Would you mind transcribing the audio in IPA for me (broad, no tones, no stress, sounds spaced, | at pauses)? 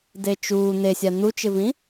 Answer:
d e t͡ʃ uː n̪ e sʲ a n̪ u t͡ʃ ɪ v ĩ